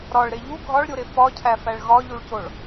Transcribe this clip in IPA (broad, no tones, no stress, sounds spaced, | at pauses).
ɾ ɒ ɭ ɾ e ʎ u ɡʱ ɒ ɭ ɾʲ o ɾ e f ɒ cʰ æ f æ ɭ ɣ ɒ ʎ u ɭ c o ɭ